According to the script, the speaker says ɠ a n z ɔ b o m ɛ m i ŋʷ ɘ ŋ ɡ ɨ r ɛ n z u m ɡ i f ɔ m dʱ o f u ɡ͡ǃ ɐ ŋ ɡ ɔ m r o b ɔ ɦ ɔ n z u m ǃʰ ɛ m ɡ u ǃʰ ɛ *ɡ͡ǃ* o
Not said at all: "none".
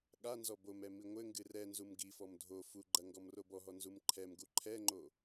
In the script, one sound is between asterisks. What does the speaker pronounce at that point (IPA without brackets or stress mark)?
ŋ͡ǃ